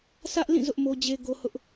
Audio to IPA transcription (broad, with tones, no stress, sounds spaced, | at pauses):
sʰ ä˦ ʔ l ĩ˦˨ z ʊ˦ ʔ m o˦ d͡ʑ e˦ ɡ o˦ h ʊ˦ ʔ